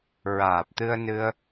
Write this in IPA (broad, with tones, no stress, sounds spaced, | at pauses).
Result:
ɹ aː˨˩ p̚ t̪ ɨ˧ ə̯ n ɨ˧ ə̯